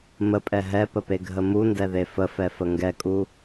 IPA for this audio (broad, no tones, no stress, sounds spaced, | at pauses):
m ə pʼ ɛ ɦ ɛ p ə p e ɡʱ ə m u n d ɛ ð e f ə f ɛ f ə ŋ ɡ ɛ kʼ u